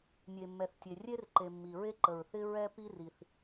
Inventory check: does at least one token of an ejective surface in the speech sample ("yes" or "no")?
no